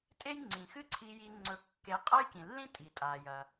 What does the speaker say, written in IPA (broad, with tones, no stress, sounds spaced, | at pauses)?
tʼ e˥ j ŋ͡ǀ ĩ˩ x ɨ˥ ǀʰ i˧ j i˧ ŋ͡ǀ ɵ˧ kː e˧ qʼ ɐ˥ j k ĩ˩ lː ĩ˥ tʼ i˩ tʼ a˩ j ɐ˩